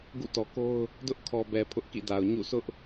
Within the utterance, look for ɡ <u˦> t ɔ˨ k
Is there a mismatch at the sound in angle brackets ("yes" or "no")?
yes